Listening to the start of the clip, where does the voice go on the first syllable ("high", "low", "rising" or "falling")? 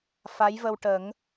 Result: rising